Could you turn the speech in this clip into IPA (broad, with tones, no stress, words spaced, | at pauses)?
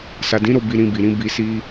sa˨dĩ˨˦ɾo˦˨ bi˧ɾĩ˧bi˨ɾĩ˨˦ bi˧si˦